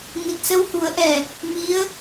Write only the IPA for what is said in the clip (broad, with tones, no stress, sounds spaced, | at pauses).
n i˨˩ t̚ s ə˧ w h u˨˩˦ ə̯ ʔ ɛ˨˩ | m i˧˥ ə̯